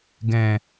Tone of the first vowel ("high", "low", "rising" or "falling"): low